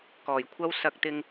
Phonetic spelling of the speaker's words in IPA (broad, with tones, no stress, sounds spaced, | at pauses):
k ɔː˨˩ j kʷʰ ɐ˥ w s ɐ˧ k̚ t̪ ɪ˧ ŋ